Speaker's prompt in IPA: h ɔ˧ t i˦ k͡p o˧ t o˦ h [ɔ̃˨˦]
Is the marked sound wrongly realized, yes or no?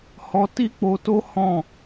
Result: yes